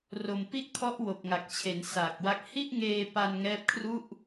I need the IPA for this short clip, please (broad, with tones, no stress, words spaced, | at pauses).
ro˨˩mpi˥˩ʔkʰɔ˦˥ʔ wo˨˩k̚ŋa˨˩k̚t͡ɕʰe˩˦n saː˨˩k̚wa˦˥k̚ hi˥˩ʔŋeː˧pa˧n ŋɛː˦˥p̚kʰru˥˩ʔ